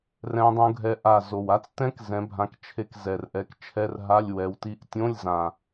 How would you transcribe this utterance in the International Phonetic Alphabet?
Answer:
r ɛ̃˦˥ dˤ ũ˦˥ ɡʱ ɛ˦˥ ʔ a˦˨ z o˨˩ w a˦˥ t͡s t ɛ̃˦˥ k z ɛ̃˨˥ bʱ ã˨˥ k t͡ʃʰ e˦˨ k z ɛ˨˩ r ʔ ɛ˨˥ k t͡ʃʰ ɛ˧˥˧ r ɦ a˧˥˧ lʲ w ɛ˨˥ w t i˧˥˧ ʔ tʲ õ˧˥˧ lʲ z ã˨˩

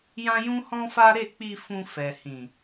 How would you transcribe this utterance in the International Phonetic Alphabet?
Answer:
j ã˦ j ũ˦ h ɔ̃˦ f a˦ ɾ e˦˨ k͡p i˧ f ũ˧ f ɛ˨ h ĩ˨

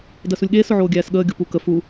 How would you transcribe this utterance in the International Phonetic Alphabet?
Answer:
d ɜ s u lʲ ɠ eː s ʊ ʕ oː ɡʲ æː s ɠ əː ɡʲ o p u k ə f u

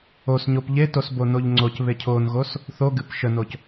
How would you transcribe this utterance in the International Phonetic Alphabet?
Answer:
o s ɲ o p ʎ e t o s b o n o ʎ ŋ͡ǀ o c β e cʰ o n ɣ o s | θ o ɡ ɨ p ʃ ə n o c

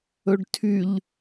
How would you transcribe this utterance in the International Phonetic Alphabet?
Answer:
ɵ ɖ tʰ y ʎ

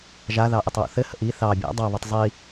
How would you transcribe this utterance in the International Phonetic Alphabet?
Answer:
ʒ a ð ɑ ʔ ə tˤ w ṵ θ ɘ h ə̰ ʔ i θ ɑ bʲ a̰ dˤ ɑ β ɘ tˤ zˤ i

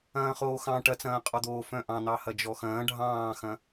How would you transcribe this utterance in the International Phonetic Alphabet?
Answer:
ɐ̃ː χ oː x ɑ̃ ʈ ɐ t͡s ɐ̃ː qʼ ɒ d̪ oː f œ̃ ʔ ɑ̃ n̪ ɑ h ɐ d͡ʒ ɔ x ɐ̃ː ɖʱ ɑ̃ː x ɐ̃

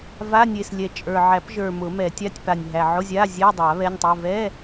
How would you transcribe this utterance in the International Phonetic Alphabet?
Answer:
v a˧˥˧ nʲ e˨˩ s lʲ ɛ˨˩ t͡ʃʼ ə˞˨˩ ʕ æ˨˩˦ p ʒ ə˞˨˩ m ʊ˨˩˦ m ɛ˨˩˦ tʲ a˧˥˧ tʲ p a˨˩ nʲ ɦ æ˨˩ ʕ ʊ˧˥˧ zʲ a˧˥˧ zʲ ɛ˧˥˧ dˤ a˨˩˦ β ɛ˧˥˧ nʲ tˤ ɛ˧˥˧ v ɛ˧˥˧

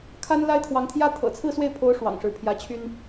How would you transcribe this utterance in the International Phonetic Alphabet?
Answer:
kʰ a˥ n l a˥ ɪ̯ t̪ʰ w ɑ˧˥ ŋ t̪ʰ j ä˥ t̪ʰ ɤ̰˨˩ t͡sʰ ɹ̩˥˧ s w e˥˩ ɪ̯ pʰ o˧˥ ʊ̯ ʂ w ɑ̰˨˩ ŋ ʂ ɻ̩˧˥ pʰ j ä˧˥ t͡ɕʰ y˥ n

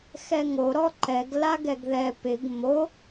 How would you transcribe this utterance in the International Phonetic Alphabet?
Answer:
x ɛ ŋ o ɾ ɔ ǃ ɛ ɡ l a ɡ ɛ ɡ ð ɛ p ɪ ɡ m o

